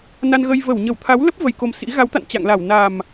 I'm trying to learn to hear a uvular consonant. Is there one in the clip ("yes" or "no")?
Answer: no